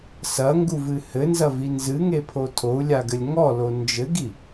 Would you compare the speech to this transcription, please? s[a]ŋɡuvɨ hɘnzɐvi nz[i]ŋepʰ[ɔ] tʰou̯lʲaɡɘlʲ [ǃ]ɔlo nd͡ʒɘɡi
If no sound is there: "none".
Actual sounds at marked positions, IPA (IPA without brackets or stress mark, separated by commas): ɐ, ɨ, o, ŋ